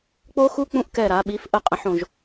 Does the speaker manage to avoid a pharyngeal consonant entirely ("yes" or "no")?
no